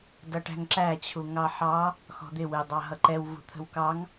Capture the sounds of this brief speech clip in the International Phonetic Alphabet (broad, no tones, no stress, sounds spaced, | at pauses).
d ʌ ʈ æ̤ ŋ ǁ æ t͡ɕʰ u ŋ ɑ ħ ɑ | x ɔ̤ d̪ ɪ w ɪ dˤ ɑ ɦ ʌ ǃ ɛ w v ṳ t̪ʰ ə̤ w k ɑ ŋ